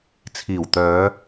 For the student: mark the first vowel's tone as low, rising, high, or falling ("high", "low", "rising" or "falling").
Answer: low